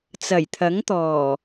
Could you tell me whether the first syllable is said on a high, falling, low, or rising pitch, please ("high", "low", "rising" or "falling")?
low